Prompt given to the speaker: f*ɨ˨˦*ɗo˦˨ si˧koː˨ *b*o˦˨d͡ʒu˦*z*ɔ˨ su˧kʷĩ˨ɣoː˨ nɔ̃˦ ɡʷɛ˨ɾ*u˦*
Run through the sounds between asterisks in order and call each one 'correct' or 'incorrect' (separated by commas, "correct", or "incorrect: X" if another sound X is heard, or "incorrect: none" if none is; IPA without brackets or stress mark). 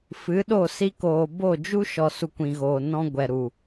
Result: correct, correct, incorrect: ʃ, incorrect: u˨